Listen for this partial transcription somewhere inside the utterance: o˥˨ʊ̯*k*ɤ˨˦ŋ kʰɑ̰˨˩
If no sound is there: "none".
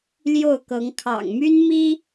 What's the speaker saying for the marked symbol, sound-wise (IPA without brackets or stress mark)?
k